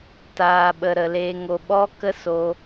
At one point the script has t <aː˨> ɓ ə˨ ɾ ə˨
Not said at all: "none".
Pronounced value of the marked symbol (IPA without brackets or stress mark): aː˨